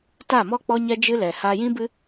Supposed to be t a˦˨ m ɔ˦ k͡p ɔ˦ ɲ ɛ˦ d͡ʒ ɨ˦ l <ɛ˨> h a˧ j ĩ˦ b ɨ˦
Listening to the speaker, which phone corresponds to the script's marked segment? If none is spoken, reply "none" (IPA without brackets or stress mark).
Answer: ɛ˨